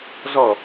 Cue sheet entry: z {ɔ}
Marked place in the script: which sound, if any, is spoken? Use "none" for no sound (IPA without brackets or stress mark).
ɔ